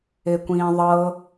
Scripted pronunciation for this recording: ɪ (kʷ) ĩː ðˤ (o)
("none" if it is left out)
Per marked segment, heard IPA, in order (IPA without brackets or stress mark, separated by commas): kʷ, ɤ